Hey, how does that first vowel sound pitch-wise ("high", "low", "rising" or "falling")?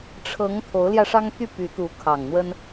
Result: rising